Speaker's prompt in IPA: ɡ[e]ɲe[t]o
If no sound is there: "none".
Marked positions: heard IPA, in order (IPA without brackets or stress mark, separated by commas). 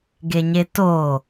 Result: e, t